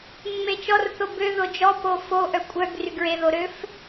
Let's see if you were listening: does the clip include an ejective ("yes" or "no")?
yes